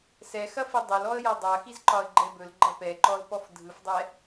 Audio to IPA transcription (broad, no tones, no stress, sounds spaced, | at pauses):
s ɛ x ɐ f i dˤ ɵ l ɔ ə̯ j ɐ dˤ a x i z ǃ ɒ ə̯ ɡ͡ǃ ɛ b ɵ l ɡ͡ǃ ɐ p ɛ ǃ ɔ l p ɔ f dʱ ɯ f dˤ ɛ